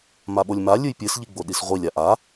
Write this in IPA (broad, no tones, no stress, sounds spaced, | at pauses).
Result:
m a ɓ o lʲ m a lʲ ɨ j pʲ ɨ s ʎ i ɡ͡b o ɗ i s ʁʷ i lʲ a ʔ a